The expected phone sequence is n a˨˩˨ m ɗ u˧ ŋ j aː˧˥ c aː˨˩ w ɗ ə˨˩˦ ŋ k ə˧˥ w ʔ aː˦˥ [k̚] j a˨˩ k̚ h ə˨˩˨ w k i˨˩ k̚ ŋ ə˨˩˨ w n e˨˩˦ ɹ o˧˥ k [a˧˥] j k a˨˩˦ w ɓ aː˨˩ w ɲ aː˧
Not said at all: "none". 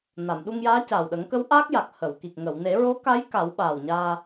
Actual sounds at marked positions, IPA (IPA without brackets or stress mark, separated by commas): k̚, a˧˥